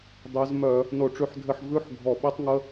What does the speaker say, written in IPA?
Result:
dˤ e˨˦ z m œ˧˩˧ | n o˧˩˧ ʈ͡ʂ ʉ˨˦ ħ dʱ ɘ˧˥˧ ħ v ʉ˧˥˧ ħ ɡʱ ɔ˧˩˧ ɓ e˥ tˤ ŋ ə˥

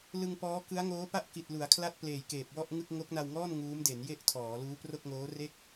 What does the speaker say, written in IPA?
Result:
l ɯ˧ ŋ p ɔː˦˥ k ɯ˦˥ a̯ ŋ oː˦˥ p a˥˩ ʔ k i˨˩ t̚ l u˩˦ a̯ kʰ l a˥˩ t̚ p l eː˨˩ j k eː˨˩ p̚ w ɔ˥˩ ʔ ŋ ɯ˥˩ k̚ ŋ o˦˥ k̚ n a˧ w ŋ ɔː˥˩ n ŋ uː˦˥ m d e˩˦ n j e˥˩ ʔ tʰ ɔː˩˦ l uː˦˥ p r o˥˩ k̚ ŋ oː˦˥ r e˥˩ k̚

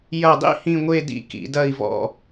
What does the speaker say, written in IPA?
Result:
j ɐ˧˩ dˤ ḭ˥ h ĩ˥˧ ŋʷ e˥˧ d ḭ˥ k ḭ˩˧ d ɐ˧˩ i̯ v ɔ̰˧˩

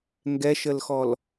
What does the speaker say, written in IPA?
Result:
ŋ ɡ ɛ ʃ ə l x ɔ l

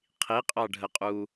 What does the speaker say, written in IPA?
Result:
qʰ i qʼ ɑ ɖʱ ə qʼ u

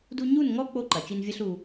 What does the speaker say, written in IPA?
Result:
d u˦ ɲ u˦˨ n ŋ ɔ˦ k͡p o˦ ǃ ɐ˨ t͡ʃ i˦ n vʲ ɐ˦ ɬ u˧

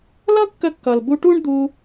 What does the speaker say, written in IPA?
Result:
l ʌ˥ kː ə˧ kː ʌ˩ l b u˧ ʈ u˥ ɳ d̪ u˧

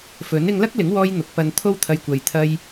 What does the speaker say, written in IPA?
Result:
f ɵ˨˥ n ɪ˧ ŋ l ɐ˥ k̚ l ɪ˨˥ ŋ w ɔː˧ j n̪ ʊ˨˥ k̚ p ɐ˧ n t̪ʰ o˥ w t̪ʰ ɐ˧ j kʷ ɐ˨ j t̪ʰ ɐ˧ j

